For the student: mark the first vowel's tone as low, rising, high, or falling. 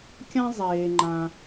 high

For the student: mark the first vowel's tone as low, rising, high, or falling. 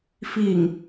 low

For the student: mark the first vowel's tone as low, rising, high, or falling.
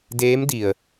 rising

